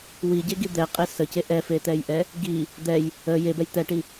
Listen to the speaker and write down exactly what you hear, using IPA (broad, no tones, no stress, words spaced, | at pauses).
wiɟeɡi d̪ɛqʼe səce ʔɛfet̪ɛjʔɛ | ɡi | d̪ɛj | ə jebɛj t̪ɛʈi